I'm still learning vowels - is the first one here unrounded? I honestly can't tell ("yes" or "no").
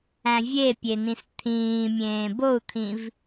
yes